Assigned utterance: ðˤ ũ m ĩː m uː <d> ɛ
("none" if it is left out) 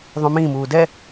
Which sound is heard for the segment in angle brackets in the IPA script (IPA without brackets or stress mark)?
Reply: d